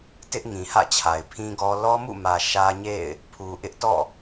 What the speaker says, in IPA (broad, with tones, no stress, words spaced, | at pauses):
tɪ˦ʔ ŋĩ˨hä̰˦˨t͡ɕʰa˨ɪ̯ pʰĩ˦ɡɔ˦ lɔ˦mṵ˦˨mä˨ ʃä˦ɲḛ˦˨ɪ̯ | pʰu˨ ʔɪ˦ʔtɔ̰˦˨